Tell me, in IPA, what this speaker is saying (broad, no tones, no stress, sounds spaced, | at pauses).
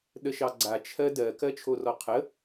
ɗ ə ʃ ɑ ɡ͡ǀ a t͡ʃʰ ɜ d ɜ k ɜ t͡ʃʰ o r ɔ qʰ ə